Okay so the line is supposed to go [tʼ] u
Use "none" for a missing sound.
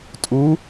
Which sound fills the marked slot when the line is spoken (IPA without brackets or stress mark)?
tʼ